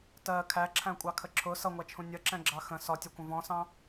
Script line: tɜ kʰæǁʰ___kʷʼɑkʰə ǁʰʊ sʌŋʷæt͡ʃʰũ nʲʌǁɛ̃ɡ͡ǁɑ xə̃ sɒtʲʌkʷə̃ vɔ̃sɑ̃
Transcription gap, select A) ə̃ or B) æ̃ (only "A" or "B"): B